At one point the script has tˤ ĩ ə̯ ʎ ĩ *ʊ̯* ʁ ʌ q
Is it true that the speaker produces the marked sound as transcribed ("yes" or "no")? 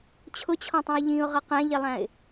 yes